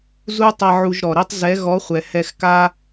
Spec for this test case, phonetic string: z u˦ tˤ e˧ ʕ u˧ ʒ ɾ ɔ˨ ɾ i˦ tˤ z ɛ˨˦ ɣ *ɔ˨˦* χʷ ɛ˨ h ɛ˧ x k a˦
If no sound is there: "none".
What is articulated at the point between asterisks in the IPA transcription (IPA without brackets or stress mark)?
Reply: ɔ˨˦